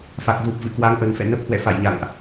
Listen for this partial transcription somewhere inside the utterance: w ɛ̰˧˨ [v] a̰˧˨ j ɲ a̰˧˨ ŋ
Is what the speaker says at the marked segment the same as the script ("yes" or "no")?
no